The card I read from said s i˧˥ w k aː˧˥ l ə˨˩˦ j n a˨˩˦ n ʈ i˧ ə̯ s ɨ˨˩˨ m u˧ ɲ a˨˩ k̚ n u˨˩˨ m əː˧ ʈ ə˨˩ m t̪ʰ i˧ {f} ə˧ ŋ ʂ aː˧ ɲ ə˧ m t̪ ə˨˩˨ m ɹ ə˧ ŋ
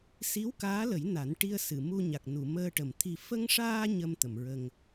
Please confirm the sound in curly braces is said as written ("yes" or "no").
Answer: yes